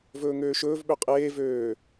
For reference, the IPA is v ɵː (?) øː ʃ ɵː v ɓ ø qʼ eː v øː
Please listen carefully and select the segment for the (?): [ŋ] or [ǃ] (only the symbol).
ŋ